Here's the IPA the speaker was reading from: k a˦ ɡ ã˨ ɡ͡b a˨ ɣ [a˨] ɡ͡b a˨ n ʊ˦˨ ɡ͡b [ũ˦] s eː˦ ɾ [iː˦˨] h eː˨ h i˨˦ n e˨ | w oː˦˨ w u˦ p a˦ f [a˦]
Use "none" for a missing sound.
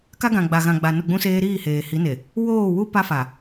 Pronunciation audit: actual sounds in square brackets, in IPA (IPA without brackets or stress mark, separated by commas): ã˨, ũ˦, iː˦˨, a˨